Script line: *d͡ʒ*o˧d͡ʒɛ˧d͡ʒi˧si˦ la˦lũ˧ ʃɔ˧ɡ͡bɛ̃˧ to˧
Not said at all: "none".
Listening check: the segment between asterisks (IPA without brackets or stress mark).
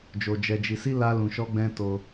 d͡ʒ